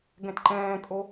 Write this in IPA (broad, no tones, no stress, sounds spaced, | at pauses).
ɡ ɛ̃ t ǃ ɛ̃ː kʼ o